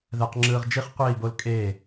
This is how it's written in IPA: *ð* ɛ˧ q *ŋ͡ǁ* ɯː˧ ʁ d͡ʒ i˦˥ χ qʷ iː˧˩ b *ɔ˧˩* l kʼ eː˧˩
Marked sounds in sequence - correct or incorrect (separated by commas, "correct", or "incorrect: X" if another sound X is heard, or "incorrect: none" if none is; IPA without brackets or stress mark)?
correct, correct, incorrect: o˧˩